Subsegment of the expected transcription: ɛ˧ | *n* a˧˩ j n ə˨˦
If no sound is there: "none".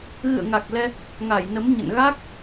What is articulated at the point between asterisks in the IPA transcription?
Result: ŋ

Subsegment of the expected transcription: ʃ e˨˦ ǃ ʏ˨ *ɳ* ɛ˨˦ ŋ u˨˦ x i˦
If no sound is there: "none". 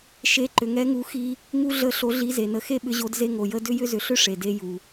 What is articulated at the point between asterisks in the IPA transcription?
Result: ŋ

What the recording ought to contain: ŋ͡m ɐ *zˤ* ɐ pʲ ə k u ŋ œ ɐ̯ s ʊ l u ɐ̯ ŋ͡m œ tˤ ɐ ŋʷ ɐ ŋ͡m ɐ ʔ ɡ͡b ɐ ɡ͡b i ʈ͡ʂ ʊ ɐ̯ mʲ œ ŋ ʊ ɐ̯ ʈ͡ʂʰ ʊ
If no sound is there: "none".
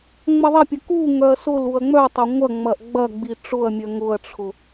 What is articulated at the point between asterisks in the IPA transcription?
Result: ðˤ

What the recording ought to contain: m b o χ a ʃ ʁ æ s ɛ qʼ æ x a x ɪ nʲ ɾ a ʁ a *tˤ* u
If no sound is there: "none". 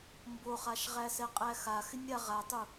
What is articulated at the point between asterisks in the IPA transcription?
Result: tˤ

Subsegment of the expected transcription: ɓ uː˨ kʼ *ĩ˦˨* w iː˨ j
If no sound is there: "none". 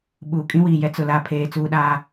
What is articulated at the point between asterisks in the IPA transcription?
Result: ĩ˦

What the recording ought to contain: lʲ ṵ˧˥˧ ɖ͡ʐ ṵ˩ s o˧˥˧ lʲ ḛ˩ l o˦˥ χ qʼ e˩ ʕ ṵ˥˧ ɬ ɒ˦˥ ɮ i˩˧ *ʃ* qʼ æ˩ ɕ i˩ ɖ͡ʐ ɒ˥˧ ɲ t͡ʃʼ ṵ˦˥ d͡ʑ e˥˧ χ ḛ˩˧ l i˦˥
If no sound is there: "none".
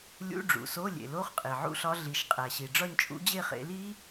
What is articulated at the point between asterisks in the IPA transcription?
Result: ʃ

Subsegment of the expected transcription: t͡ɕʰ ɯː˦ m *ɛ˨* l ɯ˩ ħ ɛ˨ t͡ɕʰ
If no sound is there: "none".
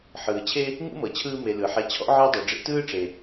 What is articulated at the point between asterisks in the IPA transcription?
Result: e˨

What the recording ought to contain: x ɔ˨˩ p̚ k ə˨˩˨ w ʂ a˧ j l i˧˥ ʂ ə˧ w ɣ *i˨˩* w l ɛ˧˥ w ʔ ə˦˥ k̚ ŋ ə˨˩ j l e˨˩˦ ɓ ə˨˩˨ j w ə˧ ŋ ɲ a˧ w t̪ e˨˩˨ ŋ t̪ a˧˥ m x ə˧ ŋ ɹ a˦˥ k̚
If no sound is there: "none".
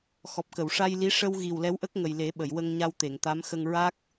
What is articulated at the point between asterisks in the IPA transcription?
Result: i˨˩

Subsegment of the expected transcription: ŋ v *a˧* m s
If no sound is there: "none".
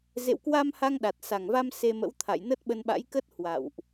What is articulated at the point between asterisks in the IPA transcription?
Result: a˧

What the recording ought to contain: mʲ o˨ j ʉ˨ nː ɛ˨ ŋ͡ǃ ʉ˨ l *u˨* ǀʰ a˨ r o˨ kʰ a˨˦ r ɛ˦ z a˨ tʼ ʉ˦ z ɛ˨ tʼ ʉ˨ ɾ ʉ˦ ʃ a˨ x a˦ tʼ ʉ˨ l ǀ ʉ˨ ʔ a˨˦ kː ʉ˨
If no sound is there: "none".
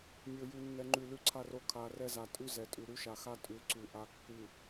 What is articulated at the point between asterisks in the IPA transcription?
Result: ʉ˨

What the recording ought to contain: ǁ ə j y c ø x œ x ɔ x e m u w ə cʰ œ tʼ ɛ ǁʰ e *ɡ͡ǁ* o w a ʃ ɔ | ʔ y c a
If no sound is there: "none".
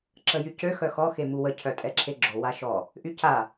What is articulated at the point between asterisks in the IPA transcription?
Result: ɡ͡ǁ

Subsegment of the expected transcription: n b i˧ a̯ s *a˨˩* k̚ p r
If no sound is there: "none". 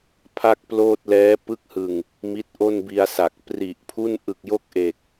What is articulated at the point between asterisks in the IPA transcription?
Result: a˨˩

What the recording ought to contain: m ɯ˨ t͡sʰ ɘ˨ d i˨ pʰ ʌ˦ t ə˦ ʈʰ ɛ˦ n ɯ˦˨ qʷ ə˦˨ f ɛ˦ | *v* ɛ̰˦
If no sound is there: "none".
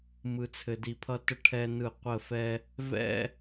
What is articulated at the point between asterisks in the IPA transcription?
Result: v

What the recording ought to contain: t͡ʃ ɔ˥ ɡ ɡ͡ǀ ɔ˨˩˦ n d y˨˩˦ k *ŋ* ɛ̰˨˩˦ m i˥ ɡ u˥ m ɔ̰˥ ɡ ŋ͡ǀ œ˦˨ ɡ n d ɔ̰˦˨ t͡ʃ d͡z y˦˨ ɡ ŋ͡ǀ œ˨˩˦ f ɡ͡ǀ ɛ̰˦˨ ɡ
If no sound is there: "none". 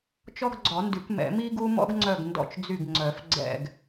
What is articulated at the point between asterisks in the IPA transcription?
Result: m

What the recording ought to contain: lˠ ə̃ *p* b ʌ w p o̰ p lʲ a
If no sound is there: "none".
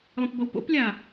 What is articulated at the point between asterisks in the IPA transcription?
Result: p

